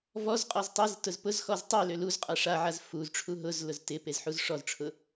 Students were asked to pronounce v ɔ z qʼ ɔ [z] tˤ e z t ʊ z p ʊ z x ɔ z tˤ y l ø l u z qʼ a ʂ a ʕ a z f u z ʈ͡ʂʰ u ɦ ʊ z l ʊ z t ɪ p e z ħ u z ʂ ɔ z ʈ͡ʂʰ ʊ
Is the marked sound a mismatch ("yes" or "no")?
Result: no